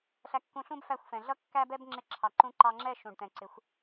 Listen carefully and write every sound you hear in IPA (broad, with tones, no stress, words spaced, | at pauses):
ɬæ˧kːũ˧ɬũ˦b fæ˦˨xʷfɛ̃˨ ɮʌ˦kːæ˦bɛ˦b ŋ͡ǁɪ˧ǁʰɑ˨ǃũ˧ ǃɑ˧ŋ͡ǁɛ˦˨ ʃũ˨ɖt̪ɛ̃˨ǀɪ˨˦xʷ